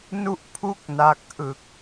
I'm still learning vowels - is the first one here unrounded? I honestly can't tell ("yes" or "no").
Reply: no